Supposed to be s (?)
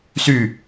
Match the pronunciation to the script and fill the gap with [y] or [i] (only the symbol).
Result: y